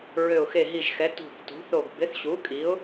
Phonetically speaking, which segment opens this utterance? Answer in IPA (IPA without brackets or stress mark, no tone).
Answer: ɹ